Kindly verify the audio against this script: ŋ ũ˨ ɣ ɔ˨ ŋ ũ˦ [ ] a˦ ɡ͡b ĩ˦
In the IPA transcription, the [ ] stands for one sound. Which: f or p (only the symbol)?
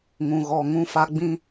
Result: f